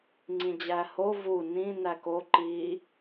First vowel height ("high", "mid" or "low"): high